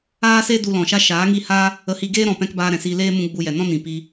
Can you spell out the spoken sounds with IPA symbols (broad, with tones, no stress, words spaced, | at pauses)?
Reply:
aː˦se˦ du˧lɔ̃˨ʃa˦ ʃaː˨˦ŋi˦˨ha˦ | ə˧hi˧ ɡeː˦ɾɔ̃˨pɛ̃˧k baː˧ɾɛ̃˨siː˧ leː˦ mũ˦ɡ͡bu˧jɛ˨ nɔ̃˦nĩ˨ pi˧